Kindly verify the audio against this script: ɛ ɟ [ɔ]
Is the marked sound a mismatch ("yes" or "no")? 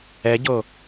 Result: yes